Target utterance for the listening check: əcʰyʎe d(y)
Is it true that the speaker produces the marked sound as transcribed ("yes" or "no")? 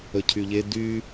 yes